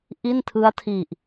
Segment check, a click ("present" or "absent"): absent